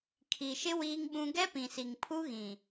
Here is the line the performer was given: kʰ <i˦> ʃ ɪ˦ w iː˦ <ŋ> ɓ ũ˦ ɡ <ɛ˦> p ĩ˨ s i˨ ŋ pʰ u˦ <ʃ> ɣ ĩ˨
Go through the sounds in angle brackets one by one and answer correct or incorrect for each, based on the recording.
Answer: incorrect, correct, correct, incorrect

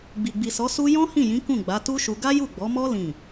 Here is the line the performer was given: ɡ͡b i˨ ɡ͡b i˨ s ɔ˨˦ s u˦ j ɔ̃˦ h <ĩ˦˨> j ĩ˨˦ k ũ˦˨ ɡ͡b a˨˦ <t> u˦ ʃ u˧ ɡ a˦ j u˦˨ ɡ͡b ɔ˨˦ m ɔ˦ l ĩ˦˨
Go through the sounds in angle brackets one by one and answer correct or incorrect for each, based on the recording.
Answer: correct, correct

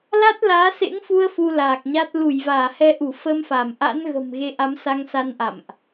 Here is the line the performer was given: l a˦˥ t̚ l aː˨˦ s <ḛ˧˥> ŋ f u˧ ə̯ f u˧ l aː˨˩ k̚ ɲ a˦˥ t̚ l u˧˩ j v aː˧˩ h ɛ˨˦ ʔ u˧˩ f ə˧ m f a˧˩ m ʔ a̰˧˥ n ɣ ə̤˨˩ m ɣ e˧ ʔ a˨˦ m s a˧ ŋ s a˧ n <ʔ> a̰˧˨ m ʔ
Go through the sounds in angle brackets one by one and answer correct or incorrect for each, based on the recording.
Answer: correct, correct

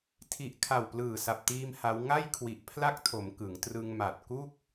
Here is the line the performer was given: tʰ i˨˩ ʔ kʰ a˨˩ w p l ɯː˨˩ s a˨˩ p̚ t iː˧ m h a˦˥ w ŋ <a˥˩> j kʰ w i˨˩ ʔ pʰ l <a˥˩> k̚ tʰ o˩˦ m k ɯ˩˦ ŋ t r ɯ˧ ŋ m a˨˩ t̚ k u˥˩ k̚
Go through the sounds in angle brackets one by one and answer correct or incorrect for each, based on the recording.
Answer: correct, correct

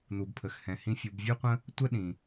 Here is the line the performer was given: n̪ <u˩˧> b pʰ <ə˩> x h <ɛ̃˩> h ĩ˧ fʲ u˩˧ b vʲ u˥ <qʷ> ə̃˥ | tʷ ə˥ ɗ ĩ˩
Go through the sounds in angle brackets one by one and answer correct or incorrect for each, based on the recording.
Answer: incorrect, correct, correct, correct

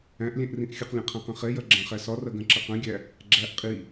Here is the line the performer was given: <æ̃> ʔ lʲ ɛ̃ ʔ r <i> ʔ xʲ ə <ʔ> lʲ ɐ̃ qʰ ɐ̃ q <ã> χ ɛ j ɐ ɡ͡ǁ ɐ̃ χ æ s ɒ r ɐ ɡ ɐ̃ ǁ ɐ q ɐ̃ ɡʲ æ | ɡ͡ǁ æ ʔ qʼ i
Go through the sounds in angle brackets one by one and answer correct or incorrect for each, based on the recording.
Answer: correct, incorrect, incorrect, incorrect

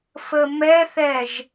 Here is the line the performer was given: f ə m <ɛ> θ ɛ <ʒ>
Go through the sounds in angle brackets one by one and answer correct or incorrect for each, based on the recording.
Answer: correct, correct

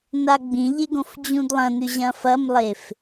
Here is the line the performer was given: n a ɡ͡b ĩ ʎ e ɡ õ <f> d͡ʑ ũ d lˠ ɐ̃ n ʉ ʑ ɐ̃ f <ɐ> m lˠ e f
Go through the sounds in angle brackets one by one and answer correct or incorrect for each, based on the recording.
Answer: correct, correct

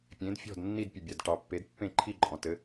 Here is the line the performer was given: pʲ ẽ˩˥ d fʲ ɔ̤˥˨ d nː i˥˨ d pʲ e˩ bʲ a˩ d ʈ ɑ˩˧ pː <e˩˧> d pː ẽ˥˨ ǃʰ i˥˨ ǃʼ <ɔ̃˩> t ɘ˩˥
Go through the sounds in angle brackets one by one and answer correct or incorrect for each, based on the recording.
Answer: incorrect, correct

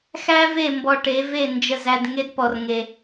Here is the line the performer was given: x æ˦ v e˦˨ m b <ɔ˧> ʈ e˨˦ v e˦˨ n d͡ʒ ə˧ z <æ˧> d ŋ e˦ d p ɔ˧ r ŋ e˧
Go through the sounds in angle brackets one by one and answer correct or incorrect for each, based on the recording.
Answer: correct, correct

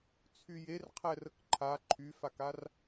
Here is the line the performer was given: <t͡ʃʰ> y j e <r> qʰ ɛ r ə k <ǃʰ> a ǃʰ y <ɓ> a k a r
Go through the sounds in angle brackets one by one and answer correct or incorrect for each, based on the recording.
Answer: incorrect, correct, correct, incorrect

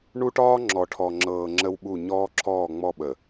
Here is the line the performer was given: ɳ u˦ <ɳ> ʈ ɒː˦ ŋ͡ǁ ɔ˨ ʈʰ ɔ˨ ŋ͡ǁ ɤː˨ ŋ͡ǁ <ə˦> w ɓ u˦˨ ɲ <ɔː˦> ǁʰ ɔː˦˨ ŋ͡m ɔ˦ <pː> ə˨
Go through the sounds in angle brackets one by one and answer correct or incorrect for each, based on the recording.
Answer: incorrect, correct, correct, incorrect

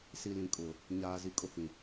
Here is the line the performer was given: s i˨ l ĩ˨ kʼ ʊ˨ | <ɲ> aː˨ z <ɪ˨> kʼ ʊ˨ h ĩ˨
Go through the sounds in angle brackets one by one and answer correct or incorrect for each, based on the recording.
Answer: correct, incorrect

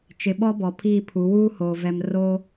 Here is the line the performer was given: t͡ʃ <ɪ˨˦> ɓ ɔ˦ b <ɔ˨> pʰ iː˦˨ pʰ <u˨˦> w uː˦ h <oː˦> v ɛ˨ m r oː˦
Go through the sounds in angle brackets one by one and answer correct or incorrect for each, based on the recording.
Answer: incorrect, correct, correct, incorrect

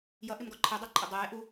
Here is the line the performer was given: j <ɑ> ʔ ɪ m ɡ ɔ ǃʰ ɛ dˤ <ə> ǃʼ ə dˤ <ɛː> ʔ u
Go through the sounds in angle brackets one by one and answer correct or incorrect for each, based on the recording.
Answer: incorrect, incorrect, correct

